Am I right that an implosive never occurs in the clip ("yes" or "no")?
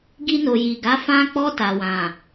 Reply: yes